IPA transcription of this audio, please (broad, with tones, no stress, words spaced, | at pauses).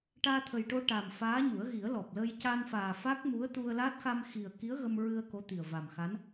ʈaː˧t̪ʰə˨˩jʈo˧ ʈa˨˩m faː˧˥ɲu˨˩˦ə̯ɣi˨˩˦ə̯ lɔ˨˩p̚lə˧j ca˧nfaː˨˩ fa˦˥k̚mu˧˥ə̯t̪u˧ə̯laː˦˥t̚ xa˧mxi˨˩ə̯ki˧˥ə̯ ɣə˧mɹɨ˧ə̯ ko˧˥t̪i˨˩ə̯ va˨˩mxa˧˥n